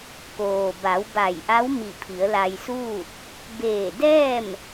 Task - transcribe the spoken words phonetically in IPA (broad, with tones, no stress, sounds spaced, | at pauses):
k oː˩ b a˩˧ w b a˧˩ j ʔ a˧˥ w m i˧˩ pʰ i˩˧ ə̯ l a˧ j s uː˥˨ t̚ | b eː˧˩ d ɛː˥˨ m